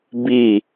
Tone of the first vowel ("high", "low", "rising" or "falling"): falling